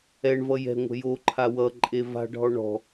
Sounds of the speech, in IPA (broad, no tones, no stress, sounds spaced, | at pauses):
ɛ ɳ v ʌ j ɛ̤ ŋʷ ɛ̤ j o ǃʰ a w ʌ ǃʼ e v a̤ ɖʱ ɔ ɳ ɔ̤